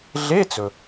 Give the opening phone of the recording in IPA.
ɮ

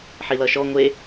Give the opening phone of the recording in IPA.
ħ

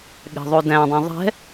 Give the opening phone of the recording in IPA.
ɠ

